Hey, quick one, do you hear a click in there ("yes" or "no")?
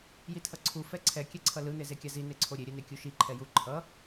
yes